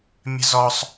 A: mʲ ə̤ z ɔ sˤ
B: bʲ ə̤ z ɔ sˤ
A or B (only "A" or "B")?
A